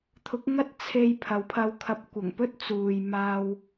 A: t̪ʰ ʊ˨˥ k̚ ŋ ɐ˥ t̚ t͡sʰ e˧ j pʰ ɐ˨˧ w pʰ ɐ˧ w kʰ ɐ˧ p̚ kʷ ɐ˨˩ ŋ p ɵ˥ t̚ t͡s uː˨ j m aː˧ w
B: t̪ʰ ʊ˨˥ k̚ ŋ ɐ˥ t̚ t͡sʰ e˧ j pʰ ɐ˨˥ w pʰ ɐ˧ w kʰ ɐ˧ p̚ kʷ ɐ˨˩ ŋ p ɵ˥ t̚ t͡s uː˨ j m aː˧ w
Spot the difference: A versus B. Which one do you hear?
A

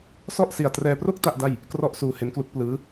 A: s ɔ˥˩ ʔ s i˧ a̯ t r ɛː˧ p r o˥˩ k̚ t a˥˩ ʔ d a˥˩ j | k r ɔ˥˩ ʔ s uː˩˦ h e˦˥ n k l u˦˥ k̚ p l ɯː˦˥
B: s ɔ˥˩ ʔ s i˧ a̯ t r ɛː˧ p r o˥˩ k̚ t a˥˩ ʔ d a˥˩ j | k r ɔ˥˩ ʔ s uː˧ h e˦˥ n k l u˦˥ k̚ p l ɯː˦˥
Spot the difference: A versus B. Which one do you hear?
B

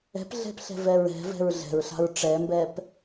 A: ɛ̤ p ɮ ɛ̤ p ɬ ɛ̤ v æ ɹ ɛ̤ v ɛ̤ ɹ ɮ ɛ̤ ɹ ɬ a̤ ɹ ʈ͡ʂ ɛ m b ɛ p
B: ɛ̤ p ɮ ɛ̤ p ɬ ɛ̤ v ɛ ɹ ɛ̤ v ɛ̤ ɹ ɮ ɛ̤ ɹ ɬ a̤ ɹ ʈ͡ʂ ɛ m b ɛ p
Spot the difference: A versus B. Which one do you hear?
B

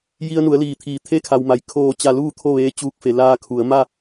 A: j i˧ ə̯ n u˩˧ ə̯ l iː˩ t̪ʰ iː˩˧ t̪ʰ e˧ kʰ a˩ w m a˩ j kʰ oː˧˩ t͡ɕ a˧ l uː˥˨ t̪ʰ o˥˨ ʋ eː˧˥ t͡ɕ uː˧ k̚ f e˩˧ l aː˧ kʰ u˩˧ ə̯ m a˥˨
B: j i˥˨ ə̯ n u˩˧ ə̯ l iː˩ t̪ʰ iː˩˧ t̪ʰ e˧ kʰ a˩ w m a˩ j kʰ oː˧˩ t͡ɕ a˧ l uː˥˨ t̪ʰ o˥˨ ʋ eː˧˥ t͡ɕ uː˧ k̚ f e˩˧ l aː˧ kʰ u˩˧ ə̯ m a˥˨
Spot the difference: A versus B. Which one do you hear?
A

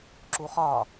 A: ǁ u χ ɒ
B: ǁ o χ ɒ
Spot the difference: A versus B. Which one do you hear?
A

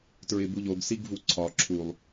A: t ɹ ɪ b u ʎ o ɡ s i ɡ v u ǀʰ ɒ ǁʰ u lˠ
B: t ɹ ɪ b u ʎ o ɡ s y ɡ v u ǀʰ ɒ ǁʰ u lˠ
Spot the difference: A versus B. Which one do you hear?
A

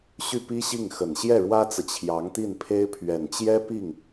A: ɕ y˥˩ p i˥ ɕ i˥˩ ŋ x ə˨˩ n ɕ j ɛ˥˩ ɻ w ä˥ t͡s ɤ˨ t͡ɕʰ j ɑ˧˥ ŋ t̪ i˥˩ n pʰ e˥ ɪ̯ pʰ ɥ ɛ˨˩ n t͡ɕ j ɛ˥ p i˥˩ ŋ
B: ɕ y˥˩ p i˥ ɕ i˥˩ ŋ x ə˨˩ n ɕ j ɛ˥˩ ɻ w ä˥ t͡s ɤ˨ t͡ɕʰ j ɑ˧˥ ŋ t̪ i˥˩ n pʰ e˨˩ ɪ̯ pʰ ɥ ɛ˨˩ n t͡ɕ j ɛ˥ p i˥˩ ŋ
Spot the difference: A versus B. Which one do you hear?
A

